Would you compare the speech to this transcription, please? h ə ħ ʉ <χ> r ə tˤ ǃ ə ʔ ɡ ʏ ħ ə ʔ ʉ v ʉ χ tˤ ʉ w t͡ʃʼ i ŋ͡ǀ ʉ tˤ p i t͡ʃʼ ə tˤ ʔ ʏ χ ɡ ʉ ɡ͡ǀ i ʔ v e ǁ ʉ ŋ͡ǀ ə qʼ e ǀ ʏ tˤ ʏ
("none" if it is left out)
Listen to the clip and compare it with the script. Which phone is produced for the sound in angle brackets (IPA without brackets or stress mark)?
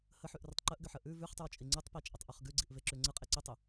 ʔ